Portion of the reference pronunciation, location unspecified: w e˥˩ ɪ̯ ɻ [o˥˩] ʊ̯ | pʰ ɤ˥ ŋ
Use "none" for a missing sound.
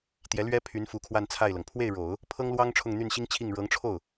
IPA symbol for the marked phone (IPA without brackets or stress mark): o˨˩˦